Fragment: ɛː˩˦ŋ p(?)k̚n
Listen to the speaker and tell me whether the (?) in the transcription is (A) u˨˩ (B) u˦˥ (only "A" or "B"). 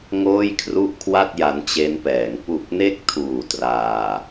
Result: A